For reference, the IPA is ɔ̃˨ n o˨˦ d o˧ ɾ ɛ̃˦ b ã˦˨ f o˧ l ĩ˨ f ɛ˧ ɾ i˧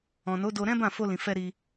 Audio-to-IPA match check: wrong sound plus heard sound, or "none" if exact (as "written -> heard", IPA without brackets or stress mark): none